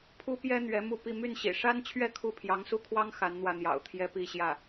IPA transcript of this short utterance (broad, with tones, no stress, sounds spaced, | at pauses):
pʰ u˥ p j ɛ˥ n̪ ɥ ɛ˧˥ m u˥˧ p i˥˧ m y˥˩ n ɕ ḭ˨˩ ʂ a˥ n t͡ɕʰ ɥ ɛ˥˧ kʰ u˥˩ pʰ j ɑ˧˥ ŋ s u˥ kʰ w ɑ˥ ŋ x a˧˥ n n̪ w ä˥˩ n̪ j ɑ̰˨˩ ʊ̯ t̪ʰ j ɛ˥ p i˥˧ ɕ j ä˥˩